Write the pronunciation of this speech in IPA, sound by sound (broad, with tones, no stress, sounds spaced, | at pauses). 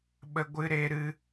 ɓ ə˧ ɡʷ ɨ˧ ɾ e˧ ɾ ɨ˧